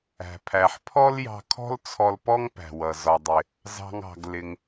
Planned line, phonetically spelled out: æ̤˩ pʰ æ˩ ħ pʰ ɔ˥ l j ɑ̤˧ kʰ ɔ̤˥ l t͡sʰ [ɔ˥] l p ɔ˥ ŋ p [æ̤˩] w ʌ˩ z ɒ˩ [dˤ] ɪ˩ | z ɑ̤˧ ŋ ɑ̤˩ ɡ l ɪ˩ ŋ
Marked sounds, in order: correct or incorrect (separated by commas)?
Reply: incorrect, correct, correct